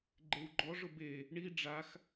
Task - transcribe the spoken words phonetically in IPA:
ɡ͡ǃ e w ɡ͡ǃ ɔ ʐ ʊ b e | ɳ i ɖ͡ʐ a x

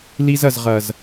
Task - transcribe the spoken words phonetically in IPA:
l i˧ z ɐ˨ z ʁ ɐ˨ z

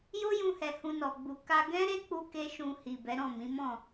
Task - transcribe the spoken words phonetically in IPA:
j o˦ j ũ˧ h ɛ˨ h ũ˧ n ɔ˨ ɡ͡b u˨ k a˧ ɡ ɛ̃˦ ɾ e˦ k͡p u˦ k e˦ ʃ ũ˧ h i˨ b ɛ˨˦ ɾ ɔ̃˦˨ m ĩ˨˦ m ɔ̃˦˨

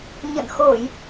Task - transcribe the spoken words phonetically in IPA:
ɲ ə̰˧˨ n x o˧˩˨ j

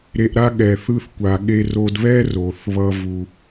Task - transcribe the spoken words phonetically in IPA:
ɾ e˧ ʔ ɾ a˦ ɠ ɛ˨ θ ɯ˧ θ kʷ a˨ ɠ e˧ r o˧ d β ɛ˦ r o˨ θ β ʌ˦ v u˦

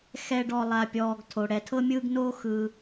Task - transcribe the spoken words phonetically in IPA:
x ɛ˦ ɖ ɔ˦ lˠ a˦ pʲ ɔː˦ ɡ tʰ o˧ ɽ ɛ˧ tʰ ɤ˦ mʲ ɯː˦ ɡ n oː˦ x ɯ˧

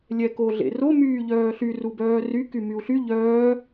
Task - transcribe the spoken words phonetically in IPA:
lʲ ɛ k o ɮ ḛ r o m yː ʎ œː ɬ y r u b œː r y k y m y u̯ ɬ y ʎ œː

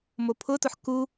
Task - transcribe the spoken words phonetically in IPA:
m o pʰ ʊ t ʊ ħ k u

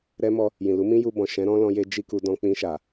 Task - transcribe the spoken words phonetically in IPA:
ɾ ɛ˧ m ɔ˧ | j ĩ˨ l u˨˦ m ĩ˦ j u˧ b ɔ̃˨ ʃ ɛ̃˨˦ ɾ ɔ̃˦ l ɔ̃˧ j e˧ d͡ʒ i˦ k u˧ d ɔ̃˧ k͡p ĩ˧ ʃ a˨

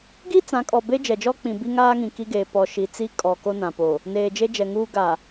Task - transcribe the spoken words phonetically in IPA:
ɡ i˦ t͡s ã˨˦ kʼ ɔ˨ b e˦ d͡ʒ ɛ˨ d͡ʒ ɔ˦ k͡p ĩ˨ b i˦ ŋ aː˦ ŋ ĩ˨ k i˦ ɡ eː˨ p ɔ˨ ʃ i˨ t͡s i˦ kʼ ɔ˨ k o˦ n ã˨ p o˨ | n eː˨ d͡ʒ e˦ d͡ʒ ɛ˨ ŋ uː˦ ɡ a˨

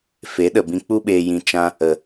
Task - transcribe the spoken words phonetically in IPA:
f e˨˦ ɗ ə˨ b ĩ˧ k͡p u˦ ɓ eː˧ j ĩ˧ t͡ʃ ã˧ | ə˨

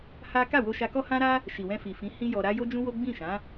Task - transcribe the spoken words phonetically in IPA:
h a˦ k a˦˨ w o˧ ʃ a˧ k ɔ˦ h ã˦ ɾ a˦ | ʃ i˨ w ɛ̃˧ f i˨ f ĩ˨˦ h ĩ˦ j ɔ˧ ɾ a˦ j o˦ d͡ʒ ũ˦ w o˦ ɡ͡b ĩ˦˨ ʃ ã˨˦

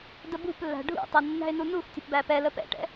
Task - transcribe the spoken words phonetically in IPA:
d ə b ṳ p lː æ̤ ɖʱ ṵ tˤ ə nː æ̤ ɪ̯ n u n u x tʲ ə̤ p b æ p ɛ l ə p ɛ̰ ʈ ɛ̰

